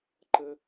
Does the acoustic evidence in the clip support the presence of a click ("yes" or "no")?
yes